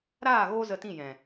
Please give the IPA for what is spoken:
ɾ aː˦˨ ɣ oː˦ z ə˧ t ĩ˦˨ j ɛ̃˨

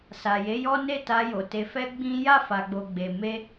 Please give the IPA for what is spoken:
s a˨ j e˨˦ j ɔ˦ n e˦˨ t a˧ j o˨ t e˨ f ɛ˧ ɡ͡b ĩ˦ j a˦˨ f a˨ ɡ͡b o˨ ɡ͡b e˨ m e˧

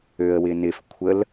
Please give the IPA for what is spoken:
ø ə̯ w ɪ n ɪ f kʷʰ ə l

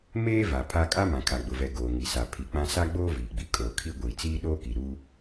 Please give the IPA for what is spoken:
m eː˦ v a˨ pʰ a˦ kʼ a˦ m ã˨ kʰ a˨ ɡ͡b ʊ˨ v ɛ˨ ɡ oː˨ ŋ i˨ s a˨ pʰ i˨ k͡p ã˦ s a˦ ɡ͡b oː˦ v iː˨ ɡ͡b i˨ kʼ oː˨ kʰ i˦ ɡʷ iː˨ t͡s iː˦ ɗ oː˦ k i˨ ɾ u˦

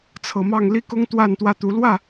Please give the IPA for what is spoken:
t͡sʰ ɤ˨˦ m ɑ˥˨ ŋ l i˦ k ʊ˦ ŋ t̪ w a˥˨ n t̪ w ä˥˨ t̪ u˨˦ l w ä˥˨

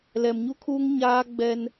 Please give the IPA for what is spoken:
l ɛ˨ m ɲ u˦ kʰ uː˦ ŋ ɲ aː˦ ɡ͡b ɛ˦ n

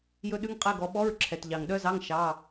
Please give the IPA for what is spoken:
j ɵ˦˥ ɗ ʉ˧˥˧ ŋ qʼ ɛ˧˥˧ ɡ ɔ˨˦ ɓ ɔ˧˥˧ ɹ ǁʰ ɛ˩ t ʎ ɑ˩ ŋ ɗ œ˦˥ z ɑ˧˥˧ ŋ ʃ ɑ˩˧˩

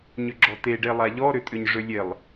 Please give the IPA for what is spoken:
ɲ ʏ ɡ͡ǁ ɔ t e ɖ e lˠ a ʎ ɔ ɾ ʏ tʼ ʏ ɲ ʐ ʏ lʲ e lˠ

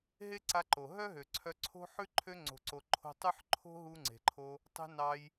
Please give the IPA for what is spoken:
ɦ e˦ ǀ a˧ ǃ o˨ ɦ œ˦ ɦ ø˨ ǀʰ œ˧ ǀʰ o̤˦ ħ ʉ˦ ǃʰ ø˧ ŋ͡ǀ o̤˨ ǀ o˨ ǃʰ o̤˧ tˤ ʉ˦ ħ ǃʰ o̤˦ ɦ u˧ ŋ͡ǀ e̤˨ ǃʰ o˧ | tˤ e̤˧ n ɑ˧ j

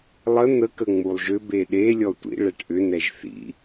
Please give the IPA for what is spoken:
lˠ ə n̪ ə k ə ŋ͡m u lˠ ʒ ʏ b e ɗ e lʲ ɔ tʷ ḭ ɭ ɛ ʈ ʔ ʏ n ɛ ʒ θ ḭ

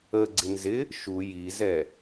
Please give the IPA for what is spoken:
ə ɡ͡ǀ ɪ n z ɪ | ʃ u j i z ɛ

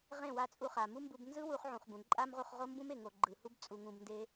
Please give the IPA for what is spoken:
ʁ ẽ˦˨ w a˧ t͡sʼ u˧ χ a˨ m u˦ m b u˧ b n z ɯ˦ w u˧ χ ʕ ũ˨ χ b ũ˨ ǃʼ a˦ m ʁ u˧ χ ʁ o˦ m b ũ˦ m e˨ ŋ o˨ ɡ͡ǃ ɯ˨ h u˦ b t͡sʼ u˧ ŋ ũ˧ b n d e˦

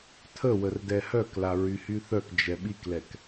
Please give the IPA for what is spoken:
tʰ ə w ə r d ɛ h œ k l a ɹ y h y θ œ k d͡ʒ ɛ ɓ i k l ɛ k

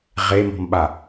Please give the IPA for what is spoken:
ʁ e m ɔ̤ m ɓ a

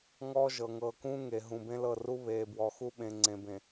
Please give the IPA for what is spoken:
ŋ ɔː˦ ʒ ɤ˨ ŋ ɤː˨ k ũː˦ ŋ e˨ ɦ ũ˨ b ẽ˦ l ɤ˦˨ r u˦ β eː˨ b w ɔ˨ x u˦ ɓ ẽ˨ ŋ͡ǀ ẽ˨ b ẽ˨

